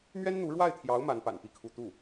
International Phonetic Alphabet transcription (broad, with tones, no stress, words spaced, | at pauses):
mɥɛ˥nn̪u˧˥ ɻwa˥˩ɪ̯t̪ʰjɑ˧˥ʊ̯ ma˧˥npa̰˨˩n pi˥˧kʰu˥˧ t̪u˥˩